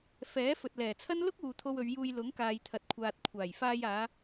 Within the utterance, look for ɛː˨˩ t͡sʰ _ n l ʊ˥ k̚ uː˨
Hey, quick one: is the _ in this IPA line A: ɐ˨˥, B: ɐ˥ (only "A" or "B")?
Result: B